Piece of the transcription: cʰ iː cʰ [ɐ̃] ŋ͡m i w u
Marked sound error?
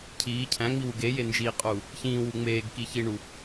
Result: yes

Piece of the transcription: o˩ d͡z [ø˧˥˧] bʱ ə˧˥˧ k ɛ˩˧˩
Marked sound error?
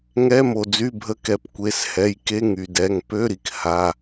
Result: yes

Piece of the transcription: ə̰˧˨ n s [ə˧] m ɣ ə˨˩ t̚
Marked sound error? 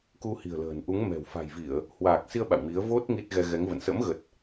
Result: yes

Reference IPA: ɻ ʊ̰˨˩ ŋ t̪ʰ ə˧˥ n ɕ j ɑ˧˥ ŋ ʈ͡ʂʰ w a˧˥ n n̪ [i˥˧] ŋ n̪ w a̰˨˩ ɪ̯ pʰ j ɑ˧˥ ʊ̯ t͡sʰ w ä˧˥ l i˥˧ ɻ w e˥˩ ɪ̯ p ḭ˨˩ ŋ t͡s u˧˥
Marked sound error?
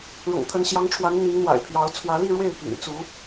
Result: yes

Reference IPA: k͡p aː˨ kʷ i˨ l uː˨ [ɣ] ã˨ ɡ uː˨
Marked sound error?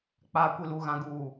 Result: no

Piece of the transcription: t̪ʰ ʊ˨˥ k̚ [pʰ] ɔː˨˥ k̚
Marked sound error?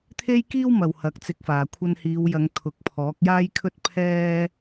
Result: no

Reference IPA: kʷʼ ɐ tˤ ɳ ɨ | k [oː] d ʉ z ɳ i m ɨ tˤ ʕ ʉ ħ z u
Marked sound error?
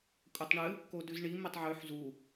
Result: yes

